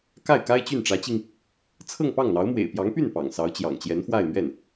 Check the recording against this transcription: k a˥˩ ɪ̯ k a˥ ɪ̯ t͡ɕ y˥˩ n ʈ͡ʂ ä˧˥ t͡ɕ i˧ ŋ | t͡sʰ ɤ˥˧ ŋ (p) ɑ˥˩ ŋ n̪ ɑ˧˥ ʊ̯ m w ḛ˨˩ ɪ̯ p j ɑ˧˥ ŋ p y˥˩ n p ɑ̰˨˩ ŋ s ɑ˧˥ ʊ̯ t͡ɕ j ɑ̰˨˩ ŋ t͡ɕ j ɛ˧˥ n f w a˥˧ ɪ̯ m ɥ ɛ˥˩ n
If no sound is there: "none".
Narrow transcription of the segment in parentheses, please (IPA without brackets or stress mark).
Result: p